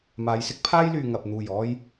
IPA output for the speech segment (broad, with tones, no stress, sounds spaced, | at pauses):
m aː˨˧ j s ɪ˥ k̚ pʰ aː˥ j l yː˨ ŋ ɐ˨ p̚ n̪ uː˨˩ j ɔː˧ j